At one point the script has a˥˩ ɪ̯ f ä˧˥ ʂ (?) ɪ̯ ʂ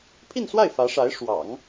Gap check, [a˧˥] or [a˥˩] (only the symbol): a˧˥